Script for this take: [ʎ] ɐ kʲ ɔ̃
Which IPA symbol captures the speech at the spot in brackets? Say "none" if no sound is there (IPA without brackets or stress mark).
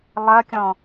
lˠ